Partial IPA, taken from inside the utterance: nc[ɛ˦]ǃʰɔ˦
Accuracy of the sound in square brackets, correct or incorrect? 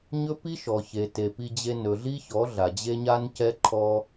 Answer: correct